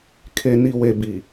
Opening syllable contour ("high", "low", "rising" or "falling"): low